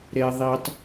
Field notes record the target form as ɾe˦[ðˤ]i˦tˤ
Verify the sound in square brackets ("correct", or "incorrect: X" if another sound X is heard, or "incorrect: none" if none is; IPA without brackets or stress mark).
correct